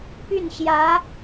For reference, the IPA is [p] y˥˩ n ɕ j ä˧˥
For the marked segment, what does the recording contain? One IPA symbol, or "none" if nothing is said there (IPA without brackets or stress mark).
p